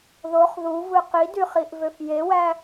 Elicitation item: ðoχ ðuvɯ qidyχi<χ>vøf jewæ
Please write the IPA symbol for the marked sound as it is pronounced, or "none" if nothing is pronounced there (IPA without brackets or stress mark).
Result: ʔ